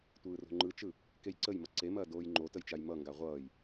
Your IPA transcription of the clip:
tʷ ɯː r o̤ ŋ͡ǃ ɯ t͡ʃ ɯ | k e j ǀ ə j m ʌ ǀ e m ɐː d oː j ŋ͡ǃ o t ə j t͡ʃ a j m ʌ ŋ ɡ a ʁʷ ʌː j

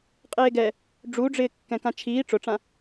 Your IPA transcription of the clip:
qʼ eː ɡ ɛ | ɖ͡ʐ u ɖ͡ʐ ɪː kː ɛ̃ k ã t͡ʃʰ iː ʈ͡ʂ ʊ ʈ͡ʂ ã

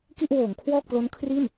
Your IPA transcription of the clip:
k i˥˩ ʔ w oː˩˦ ŋ kʰ w ɔː˥˩ k̚ p l o˦˥ n kʰ r i˥˩ n

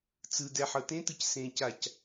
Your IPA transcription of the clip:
t͡s ɯ d ɛ ħ ɤ t ẽ t ɯ c s ẽ c a c

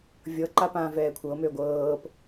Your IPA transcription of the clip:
vʲ ɤ ǃ a p ãː v ɛː kʷʰ ɤ m ø ɡʷ ɤː p

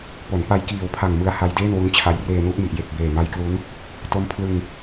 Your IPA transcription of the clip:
p o˩˦ n p a˧ j k iː˨˩ w pʰ a˨˩ ŋ m ɯ˧ a̯ h a˧ j d eː˥˩ n w u˦˥ n t͡ɕʰ a˧ j r eː˧ n u˦˥ ʔ m i˨˩ ʔ j e˨˩ k̚ b eː˨˩ m a˦˥ j k l u˦˥ n | t o˦˥ m pʰ l ɯ˧ ŋ

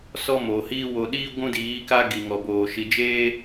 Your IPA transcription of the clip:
s ɔ˦ m o˨ h iː˦ w o˨ ɗ iː˦ ɡʷ ũ˦ d iː˨˦ k a˦ ɡ i˨ ŋ ɔ˨ b oː˨ ʃ i˧ d͡ʒ eː˦

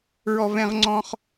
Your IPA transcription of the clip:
ɹ ɔ˥ v ɛ̃˥ ʁ ŋ͡ǀ ɔ̃˥ χ

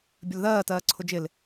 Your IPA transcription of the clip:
bʲ ə l ð ɜː t ɜː ǀʰ ʊ d͡ʒ ɪ l

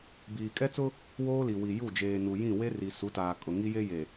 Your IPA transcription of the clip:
b iː˨ kʼ ɛ˦ t͡s ʊ˦ | w oː˦ l i˨ w i˨ j u˦˨ d͡ʒ eː˨ n u˨ j ĩ˦˨ w e˦ r i˨ s u˨˦ t aː˨ kʼ ʊ˨ ŋ i˦ j e˦ j e˨

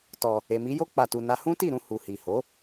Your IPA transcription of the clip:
t ɔ˧ | e˨ m i˨˦ j o˦ k͡p a˧ t u˧ n a˦ h ũ˦ t i˦˨ ɾ ũ˧ h u˨ h i˨ h o˨˦

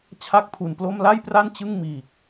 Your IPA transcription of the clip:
t͡ɕʰ a˥˩ k̚ pʰ u˨˩ n p l o˥˩ m l a˥˩ j p r a˥˩ n t͡ɕ ɯ˥˩ ŋ m iː˨˩ k̚

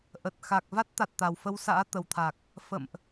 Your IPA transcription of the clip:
ʔ ə˨˩ t̚ x a˨˩ k̚ v a˦˥ t̚ t̪ a˨˩ t̚ t̪ a˨˩ w f ə˧ w s a̰ː˧˥ t̪ ə˨˩ w t̪ʰ a˨˩ k̚ | f ə̰˧˨ m ʔ

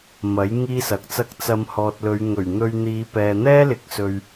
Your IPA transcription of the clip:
m ɐ˨˥ j ŋ iː˥ s ɐ˨ k̚ t͡s ɐ˥ k̚ t͡s ɐ˧ m h ɔː˨ t̚ l ɵ˨˧ ɥ ŋ ɵ˨˩ ɥ n̪ ɵ˧ ɥ n̪ iː˨˧ p ɛː˨ n̪ ɛː˥ l ɪ˨˥ k̚ s ɵ˨ ɥ

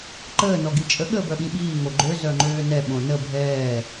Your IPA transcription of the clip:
ǃ əː n ɔ ɡ i t͡ʃʼ ə ɠ əː b œ ɠ ĩ ɓ iː ŋ o ɡ͡ǃ ø z œ ŋ͡ǃ øː n ɛ ɓ õ n ə bʱ ɛː

